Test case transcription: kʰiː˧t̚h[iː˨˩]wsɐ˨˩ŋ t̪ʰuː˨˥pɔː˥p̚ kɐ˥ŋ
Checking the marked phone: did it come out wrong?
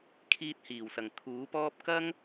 no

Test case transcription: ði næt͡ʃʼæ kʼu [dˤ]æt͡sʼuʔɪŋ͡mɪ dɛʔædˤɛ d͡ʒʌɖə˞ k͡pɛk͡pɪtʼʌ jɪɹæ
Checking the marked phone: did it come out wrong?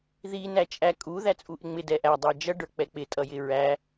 yes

